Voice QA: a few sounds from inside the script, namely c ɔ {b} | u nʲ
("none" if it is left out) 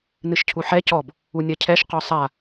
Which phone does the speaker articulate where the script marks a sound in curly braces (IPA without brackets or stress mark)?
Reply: b